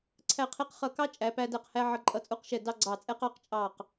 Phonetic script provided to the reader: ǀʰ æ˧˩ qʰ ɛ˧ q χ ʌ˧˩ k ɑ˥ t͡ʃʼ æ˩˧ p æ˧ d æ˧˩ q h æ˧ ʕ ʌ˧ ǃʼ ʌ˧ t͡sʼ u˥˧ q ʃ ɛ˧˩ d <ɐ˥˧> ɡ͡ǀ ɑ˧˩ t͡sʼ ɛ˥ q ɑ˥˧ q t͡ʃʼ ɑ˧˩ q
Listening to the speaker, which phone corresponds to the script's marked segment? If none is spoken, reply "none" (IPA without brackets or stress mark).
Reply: ɑ˥˧